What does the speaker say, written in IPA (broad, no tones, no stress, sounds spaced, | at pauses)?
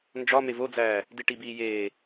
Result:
n d͡ʒ ɒ m e v o d͡z æː | d i ʈ i b iː j eː